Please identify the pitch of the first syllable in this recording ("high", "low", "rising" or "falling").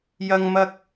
high